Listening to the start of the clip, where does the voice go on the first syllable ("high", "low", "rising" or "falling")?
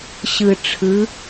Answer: low